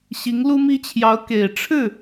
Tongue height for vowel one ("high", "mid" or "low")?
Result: high